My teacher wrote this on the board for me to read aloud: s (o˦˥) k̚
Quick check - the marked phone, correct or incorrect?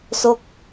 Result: correct